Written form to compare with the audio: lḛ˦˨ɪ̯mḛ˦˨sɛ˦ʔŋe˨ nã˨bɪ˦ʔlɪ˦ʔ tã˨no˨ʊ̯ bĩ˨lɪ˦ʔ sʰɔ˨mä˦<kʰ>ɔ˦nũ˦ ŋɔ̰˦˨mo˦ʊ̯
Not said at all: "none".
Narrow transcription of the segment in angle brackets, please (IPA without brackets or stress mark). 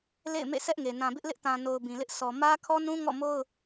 kʰ